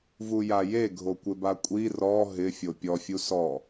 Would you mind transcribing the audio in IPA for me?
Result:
v u j a j e ɡʱ o kʷ ɪ b a kʷʼ i r ɔ ɦ ɪ fʲ o pʲ ɔ fʲ u s ɔ

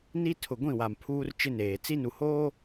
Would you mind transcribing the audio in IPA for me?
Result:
n i˦ tʰ ʊ˨ ɡʷ ĩ˦˨ w a˨ m pʰ uː˦ r t͡ʃ ɪ˦ n eː˨ t͡s i˦ n u˨ h oː˦

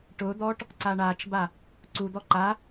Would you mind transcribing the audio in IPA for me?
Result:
ʈ ʊ d̪ ɔ ʈ | ǀ a ɳ a t͡ʃ b a | ǀ u d̪ ɔ ǃ a

